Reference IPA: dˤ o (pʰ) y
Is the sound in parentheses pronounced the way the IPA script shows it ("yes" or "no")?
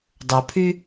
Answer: yes